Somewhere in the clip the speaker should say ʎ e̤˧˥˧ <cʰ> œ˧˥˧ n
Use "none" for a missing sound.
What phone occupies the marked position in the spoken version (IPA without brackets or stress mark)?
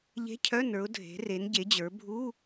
cʰ